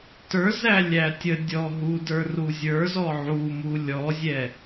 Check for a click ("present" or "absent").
absent